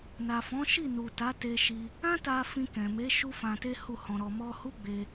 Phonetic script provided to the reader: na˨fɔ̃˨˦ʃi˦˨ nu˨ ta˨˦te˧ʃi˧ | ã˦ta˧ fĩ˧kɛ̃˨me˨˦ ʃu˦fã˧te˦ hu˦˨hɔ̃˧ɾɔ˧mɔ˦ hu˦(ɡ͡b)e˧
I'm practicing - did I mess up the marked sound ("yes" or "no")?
no